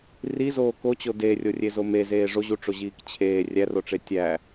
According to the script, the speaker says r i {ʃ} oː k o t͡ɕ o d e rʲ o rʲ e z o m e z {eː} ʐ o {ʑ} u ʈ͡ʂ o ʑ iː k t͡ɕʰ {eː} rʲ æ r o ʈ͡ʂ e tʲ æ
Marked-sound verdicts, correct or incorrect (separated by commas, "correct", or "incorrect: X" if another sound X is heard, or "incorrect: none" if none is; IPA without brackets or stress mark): incorrect: z, correct, correct, correct